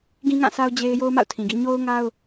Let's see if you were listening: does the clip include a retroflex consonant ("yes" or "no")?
no